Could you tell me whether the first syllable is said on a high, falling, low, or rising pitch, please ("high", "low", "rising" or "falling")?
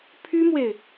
high